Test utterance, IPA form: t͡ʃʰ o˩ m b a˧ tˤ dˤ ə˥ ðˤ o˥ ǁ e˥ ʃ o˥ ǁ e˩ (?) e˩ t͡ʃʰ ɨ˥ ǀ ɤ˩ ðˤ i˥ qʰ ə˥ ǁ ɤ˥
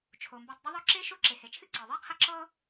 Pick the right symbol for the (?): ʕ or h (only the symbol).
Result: h